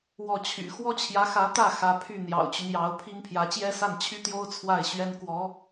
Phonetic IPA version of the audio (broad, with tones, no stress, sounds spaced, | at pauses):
w ɔ˥˩ t͡ɕʰ y̰˨˩ x w ɔ˥ t͡ɕʰ j ä˧˥ x ä˧˥ t̪ ä˥˩ x ä˧˥ pʰ y˥˩ n̪ j ɑ̰˨˩ ʊ̯ t͡ɕ y˦ n j ɑ˧˥ ʊ̯ pʰ i˥ ŋ pʰ j ä˧˥ t͡ɕ j ɛ˥ s a˥˩ n t͡ɕʰ y˥ t̪ j o˥ ʊ̯ t͡sʰ w a˥˩ ɪ̯ ɕ ɥ ɛ˥ n k w ɔ˧˥